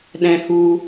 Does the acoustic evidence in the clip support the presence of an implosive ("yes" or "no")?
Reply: yes